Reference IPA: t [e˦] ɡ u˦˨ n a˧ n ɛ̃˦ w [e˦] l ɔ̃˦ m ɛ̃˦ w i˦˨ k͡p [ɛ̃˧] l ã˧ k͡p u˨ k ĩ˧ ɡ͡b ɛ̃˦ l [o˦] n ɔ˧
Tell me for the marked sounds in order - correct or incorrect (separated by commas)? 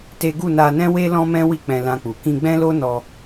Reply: correct, correct, correct, correct